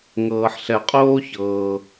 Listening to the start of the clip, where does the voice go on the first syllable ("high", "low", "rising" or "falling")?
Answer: low